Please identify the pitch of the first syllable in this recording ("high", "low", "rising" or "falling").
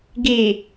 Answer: low